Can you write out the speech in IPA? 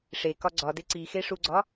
ʂ e k ɒ ɡ͡ǀ ɒ d e ǀ i x e ʂ u ɡ͡ǀ ɒ

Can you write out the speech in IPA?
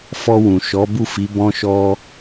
f ɔ˧ w ũ˨ ʃ ɔ˨˦ b u˦˨ f i˨˦ b ɔ̃˦ ʃ ɔ˦

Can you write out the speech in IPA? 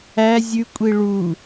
æ zʲ ʉ kʷʼ i ɭ u

